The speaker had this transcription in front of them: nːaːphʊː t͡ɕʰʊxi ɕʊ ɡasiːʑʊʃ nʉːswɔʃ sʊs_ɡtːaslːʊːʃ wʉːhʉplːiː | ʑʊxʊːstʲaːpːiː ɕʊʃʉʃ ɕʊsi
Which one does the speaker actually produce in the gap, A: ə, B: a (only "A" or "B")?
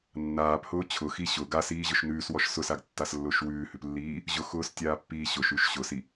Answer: B